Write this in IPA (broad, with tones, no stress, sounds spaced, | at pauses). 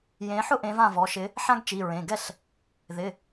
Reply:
j ẽ˨˦ ħ ʊ˥ ʔ ẽ˨˦ v ã˥˩ v ɔ˩˧˩ ʃ ɪ˨˦ | ħ ã˥ ɡ t͡ʃ i˩˧˩ ɹ ẽ˩˧˩ ɡ ɛ˥˩ ɬ | ð ɪ˩˧˩